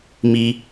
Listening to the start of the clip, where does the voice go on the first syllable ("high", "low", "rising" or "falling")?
low